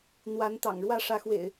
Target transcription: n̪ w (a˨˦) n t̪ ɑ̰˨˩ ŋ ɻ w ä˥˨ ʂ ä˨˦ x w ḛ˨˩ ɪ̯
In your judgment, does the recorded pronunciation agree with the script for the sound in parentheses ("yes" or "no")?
yes